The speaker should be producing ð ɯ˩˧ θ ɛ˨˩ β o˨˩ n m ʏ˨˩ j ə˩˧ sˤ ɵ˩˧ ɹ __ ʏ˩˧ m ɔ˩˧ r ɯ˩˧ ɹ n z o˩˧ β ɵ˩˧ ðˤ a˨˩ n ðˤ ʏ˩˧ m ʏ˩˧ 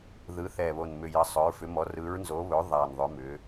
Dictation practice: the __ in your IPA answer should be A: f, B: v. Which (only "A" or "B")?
A